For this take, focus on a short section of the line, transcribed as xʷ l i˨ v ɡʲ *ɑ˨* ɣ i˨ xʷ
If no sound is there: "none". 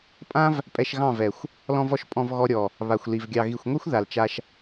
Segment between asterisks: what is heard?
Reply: ɑ˨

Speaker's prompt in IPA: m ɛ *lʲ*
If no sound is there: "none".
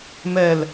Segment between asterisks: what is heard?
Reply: l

